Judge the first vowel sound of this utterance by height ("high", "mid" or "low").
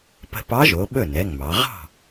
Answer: mid